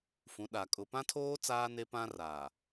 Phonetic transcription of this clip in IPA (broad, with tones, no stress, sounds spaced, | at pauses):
f ũ˨˦ ɗ a˨ kʼ ʊ˨ p ã˦ tʰ oː˦ t͡s aː˦ n e˦ p ã˦ r aː˨